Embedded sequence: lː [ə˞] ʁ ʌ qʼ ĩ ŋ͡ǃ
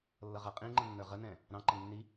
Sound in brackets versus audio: incorrect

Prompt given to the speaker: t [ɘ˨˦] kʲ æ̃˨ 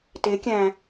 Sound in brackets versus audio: incorrect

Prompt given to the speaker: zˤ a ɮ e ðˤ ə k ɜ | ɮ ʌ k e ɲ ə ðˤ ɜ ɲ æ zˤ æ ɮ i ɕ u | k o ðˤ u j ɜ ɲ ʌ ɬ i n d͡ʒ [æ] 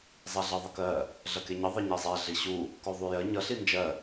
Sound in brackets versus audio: incorrect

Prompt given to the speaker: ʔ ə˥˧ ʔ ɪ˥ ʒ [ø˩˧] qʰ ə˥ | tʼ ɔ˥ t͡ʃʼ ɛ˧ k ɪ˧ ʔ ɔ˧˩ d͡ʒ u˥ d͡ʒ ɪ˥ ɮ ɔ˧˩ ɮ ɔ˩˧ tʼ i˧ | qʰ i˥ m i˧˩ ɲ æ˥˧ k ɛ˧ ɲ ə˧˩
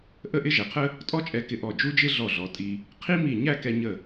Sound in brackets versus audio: incorrect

